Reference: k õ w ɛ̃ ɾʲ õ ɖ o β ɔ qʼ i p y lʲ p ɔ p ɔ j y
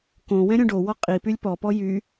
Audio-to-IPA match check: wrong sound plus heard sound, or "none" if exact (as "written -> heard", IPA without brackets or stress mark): β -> w